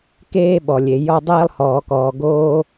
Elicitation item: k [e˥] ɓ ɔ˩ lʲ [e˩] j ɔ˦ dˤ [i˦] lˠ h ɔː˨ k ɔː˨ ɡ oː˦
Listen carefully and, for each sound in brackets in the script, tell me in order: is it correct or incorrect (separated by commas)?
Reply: incorrect, correct, incorrect